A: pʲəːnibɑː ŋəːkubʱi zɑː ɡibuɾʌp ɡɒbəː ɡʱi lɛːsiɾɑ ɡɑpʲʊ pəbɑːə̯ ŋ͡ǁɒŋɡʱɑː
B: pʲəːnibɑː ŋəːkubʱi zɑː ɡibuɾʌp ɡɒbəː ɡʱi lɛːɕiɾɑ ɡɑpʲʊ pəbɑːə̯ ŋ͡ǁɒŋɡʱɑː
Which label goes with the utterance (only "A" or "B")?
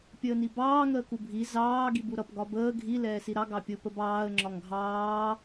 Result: A